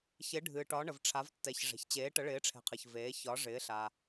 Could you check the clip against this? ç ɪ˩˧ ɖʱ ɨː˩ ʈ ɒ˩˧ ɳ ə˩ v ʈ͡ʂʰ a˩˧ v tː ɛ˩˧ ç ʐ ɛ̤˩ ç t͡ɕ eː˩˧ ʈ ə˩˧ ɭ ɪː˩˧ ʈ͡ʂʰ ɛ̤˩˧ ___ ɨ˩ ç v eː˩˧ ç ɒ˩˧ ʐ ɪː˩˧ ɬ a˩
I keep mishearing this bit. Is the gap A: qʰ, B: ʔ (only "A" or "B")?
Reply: A